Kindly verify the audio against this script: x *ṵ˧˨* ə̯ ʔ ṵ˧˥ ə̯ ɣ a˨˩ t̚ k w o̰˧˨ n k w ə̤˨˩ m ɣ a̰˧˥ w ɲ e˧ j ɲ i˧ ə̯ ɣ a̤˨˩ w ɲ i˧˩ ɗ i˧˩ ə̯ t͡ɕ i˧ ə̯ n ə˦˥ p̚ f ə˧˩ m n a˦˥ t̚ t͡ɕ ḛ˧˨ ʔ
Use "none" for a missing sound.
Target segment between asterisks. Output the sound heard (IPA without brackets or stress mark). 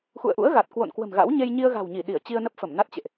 ṵ˧˨